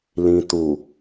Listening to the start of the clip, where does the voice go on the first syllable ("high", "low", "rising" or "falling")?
low